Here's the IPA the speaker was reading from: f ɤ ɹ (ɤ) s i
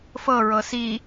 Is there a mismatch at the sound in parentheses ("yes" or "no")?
no